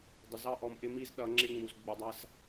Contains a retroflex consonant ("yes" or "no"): no